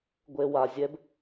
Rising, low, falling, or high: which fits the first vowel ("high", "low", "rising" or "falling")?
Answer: low